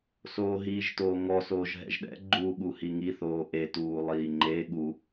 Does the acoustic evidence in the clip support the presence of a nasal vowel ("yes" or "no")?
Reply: no